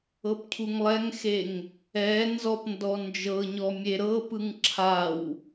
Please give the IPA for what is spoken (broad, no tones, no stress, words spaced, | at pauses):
ɤpcʰuŋlˠɛŋxeŋ | ɛ nzɔpndɔ nd͡ʒɤɲɔ mʲeɾɤpɯŋ ǁʰaw